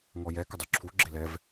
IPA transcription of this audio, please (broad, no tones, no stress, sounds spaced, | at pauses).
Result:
ŋ ɔ j ɛ k ə dˤ y ǁʰ u ɡ͡ǁ ɪ l ɛ v